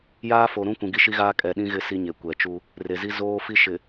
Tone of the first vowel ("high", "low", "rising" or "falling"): high